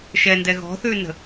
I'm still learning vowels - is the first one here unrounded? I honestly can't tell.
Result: yes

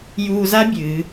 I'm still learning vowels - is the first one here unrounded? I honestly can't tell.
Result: no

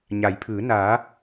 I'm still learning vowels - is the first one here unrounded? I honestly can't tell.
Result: yes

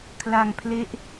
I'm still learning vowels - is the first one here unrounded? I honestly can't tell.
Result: yes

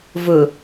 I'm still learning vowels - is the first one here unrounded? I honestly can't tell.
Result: no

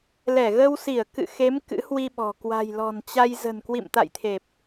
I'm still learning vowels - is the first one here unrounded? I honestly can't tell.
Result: yes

